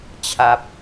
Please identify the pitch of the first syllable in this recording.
low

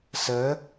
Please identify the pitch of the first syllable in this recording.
rising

